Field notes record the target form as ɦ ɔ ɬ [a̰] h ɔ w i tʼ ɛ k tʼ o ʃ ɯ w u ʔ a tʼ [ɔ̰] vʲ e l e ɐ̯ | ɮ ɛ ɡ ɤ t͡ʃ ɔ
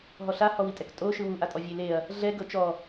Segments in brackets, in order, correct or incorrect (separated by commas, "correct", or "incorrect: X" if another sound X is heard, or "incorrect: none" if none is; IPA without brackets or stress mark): incorrect: a, incorrect: ɔ